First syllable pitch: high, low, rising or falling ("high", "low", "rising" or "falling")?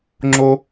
high